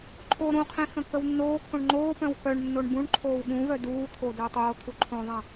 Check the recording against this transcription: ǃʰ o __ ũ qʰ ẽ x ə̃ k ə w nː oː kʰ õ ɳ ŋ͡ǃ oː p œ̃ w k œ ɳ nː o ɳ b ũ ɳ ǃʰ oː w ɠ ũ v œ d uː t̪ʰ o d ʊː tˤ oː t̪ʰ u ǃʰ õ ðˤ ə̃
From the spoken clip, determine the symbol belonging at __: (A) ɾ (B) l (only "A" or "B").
A